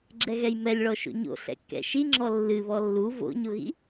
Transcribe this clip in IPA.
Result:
ɡ͡ǁ ɛ ɣ ɛ j m ɛ lʲ ɭ ɔ ʃ o̰ ɲ o̰ ɬ ɛ̰ kː ɛ̰ ʃ i ŋ͡ǁ ɔ lː ɨ β ɔ lː u v o̰ ɲ o ɣ ḭ

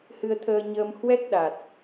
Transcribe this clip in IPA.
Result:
h ɨ˧ ə̯ t̪ʰ əː˧ ɲ əː˧ m h w ɛ˦˥ k̚ ɗ a˨˩ t̚

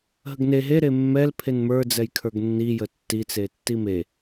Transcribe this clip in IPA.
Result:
ɦ ə ɡ n e ɦ e ɾ e mː ɛ l pʰ e n m ə˞ d͡z ɛ j kʰ ə˞ ɡ nː i j ə tː i t͡s e tː i m e

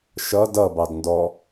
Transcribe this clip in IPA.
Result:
ʃ ʌ d ʌ b ɑ d n d ɔ

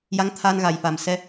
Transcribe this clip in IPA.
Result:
j a˧˥ ŋ t̪ʰ a˧ n ɣ a˨˩ j f a˨˩ m s ɛ˧

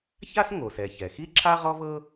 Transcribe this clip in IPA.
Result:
ç a˥ s ŋ o˩ s ɛ˩ ç ɛ˩ x i˥ ǁʰ a˥ ʁ ɔ˥ v ɤ˥

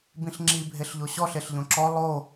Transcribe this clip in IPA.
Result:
b ĩ ɬ ŋ͡ǁ i bʱ e ɬ ʎ o ɕ ɔ ɬ e ɬ ʎ õ ǁ ɔ lˠ o

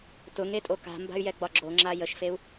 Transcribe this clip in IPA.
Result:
t ʊ ŋ e tʼ o k a̤ m b a̤ y̯ j ɛ ɡ͡b ɒ ɡ͡ǁ o ŋ͡ǁ a j ə ʃ f e u̯

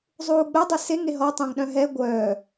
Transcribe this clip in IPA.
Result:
zˤ uː ɡ͡b œ dˤ ø s e ŋ e ɦ ɔ tˤ œ̃ ŋ ɗ œ̃ ɦ ɛ ɡʷ œː

